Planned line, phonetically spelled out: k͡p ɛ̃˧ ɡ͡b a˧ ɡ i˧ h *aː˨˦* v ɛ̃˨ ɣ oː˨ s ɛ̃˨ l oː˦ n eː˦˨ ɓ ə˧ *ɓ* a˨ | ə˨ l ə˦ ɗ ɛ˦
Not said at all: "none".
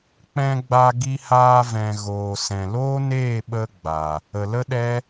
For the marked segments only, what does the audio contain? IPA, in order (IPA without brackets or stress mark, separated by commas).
aː˧, ɡ͡b